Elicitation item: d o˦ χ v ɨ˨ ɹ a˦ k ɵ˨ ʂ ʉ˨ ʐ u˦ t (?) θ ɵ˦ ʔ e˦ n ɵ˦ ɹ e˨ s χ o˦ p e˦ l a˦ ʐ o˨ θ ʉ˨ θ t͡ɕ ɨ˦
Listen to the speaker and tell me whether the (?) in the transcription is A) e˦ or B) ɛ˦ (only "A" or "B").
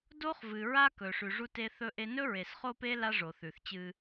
A